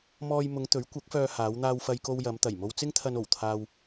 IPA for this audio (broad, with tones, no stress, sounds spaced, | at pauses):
m ɔː˥ j m ʊ˨˧ ŋ t̪ ɵ˨˥ ɥ kʷ ɐ˨˥ k̚ f œː˧ h aː˨˧ w n̪ aː˧ w f ɐ˧ j k o˧ w j ɐ˨˧ m t̪ ɐ˨˩ j m o˧ w t͡s ɪ˥ ŋ t̪ʰ ɐ˧ n o˨˩ w t̪ʰ aː˧ w